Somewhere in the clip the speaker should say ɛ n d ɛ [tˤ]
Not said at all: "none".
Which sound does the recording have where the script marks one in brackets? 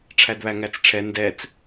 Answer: t͡s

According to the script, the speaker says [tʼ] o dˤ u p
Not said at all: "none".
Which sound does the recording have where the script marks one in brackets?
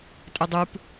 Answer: tʼ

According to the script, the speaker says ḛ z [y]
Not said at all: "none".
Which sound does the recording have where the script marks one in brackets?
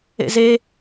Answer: e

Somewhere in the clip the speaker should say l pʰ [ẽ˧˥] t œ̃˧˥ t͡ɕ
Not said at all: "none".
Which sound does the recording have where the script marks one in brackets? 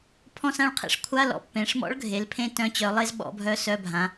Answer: ẽ˥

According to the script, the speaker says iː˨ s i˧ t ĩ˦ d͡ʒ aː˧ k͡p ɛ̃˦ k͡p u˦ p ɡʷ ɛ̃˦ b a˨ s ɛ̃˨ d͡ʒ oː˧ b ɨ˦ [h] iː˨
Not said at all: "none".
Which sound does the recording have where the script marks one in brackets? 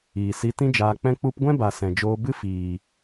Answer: f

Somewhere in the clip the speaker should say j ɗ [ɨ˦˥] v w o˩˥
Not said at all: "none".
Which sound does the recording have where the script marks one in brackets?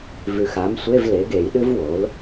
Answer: ɨ˦˥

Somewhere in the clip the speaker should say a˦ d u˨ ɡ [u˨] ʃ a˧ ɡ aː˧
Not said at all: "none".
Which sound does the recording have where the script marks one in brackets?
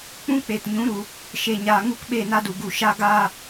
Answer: u˨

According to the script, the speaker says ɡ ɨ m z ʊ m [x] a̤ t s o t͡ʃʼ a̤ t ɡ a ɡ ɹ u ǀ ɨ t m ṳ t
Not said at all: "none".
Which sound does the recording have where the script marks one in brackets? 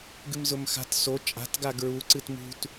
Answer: x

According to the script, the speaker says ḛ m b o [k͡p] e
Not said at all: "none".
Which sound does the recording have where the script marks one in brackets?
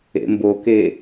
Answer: k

